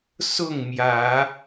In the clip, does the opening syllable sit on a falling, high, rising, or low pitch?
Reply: falling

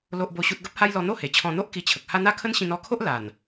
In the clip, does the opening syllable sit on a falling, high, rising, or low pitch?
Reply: high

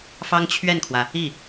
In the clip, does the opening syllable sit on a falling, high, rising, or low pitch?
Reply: high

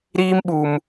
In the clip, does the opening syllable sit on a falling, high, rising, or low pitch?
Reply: high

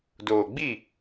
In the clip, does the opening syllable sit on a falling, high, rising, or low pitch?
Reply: low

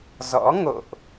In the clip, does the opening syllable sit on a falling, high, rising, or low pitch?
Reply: rising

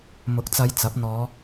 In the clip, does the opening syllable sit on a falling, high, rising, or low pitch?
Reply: rising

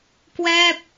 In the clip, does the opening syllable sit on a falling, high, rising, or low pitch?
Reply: falling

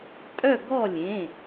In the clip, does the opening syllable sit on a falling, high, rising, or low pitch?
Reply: falling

